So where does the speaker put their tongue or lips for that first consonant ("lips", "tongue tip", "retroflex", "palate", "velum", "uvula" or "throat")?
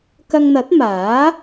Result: velum